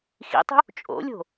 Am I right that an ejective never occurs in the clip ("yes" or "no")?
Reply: no